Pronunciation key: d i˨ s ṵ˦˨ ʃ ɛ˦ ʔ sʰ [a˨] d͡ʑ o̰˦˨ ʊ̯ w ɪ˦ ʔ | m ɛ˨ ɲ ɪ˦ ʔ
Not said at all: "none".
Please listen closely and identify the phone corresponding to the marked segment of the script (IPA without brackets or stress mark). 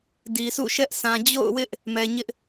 ã˨